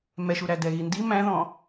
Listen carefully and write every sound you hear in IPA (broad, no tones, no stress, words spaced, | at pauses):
mɛʃuɾæ dɛɣindi mæ̃ðɔ̃